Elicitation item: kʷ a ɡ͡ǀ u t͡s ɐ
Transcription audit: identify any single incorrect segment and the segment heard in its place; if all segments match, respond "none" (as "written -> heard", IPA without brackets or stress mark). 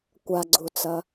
none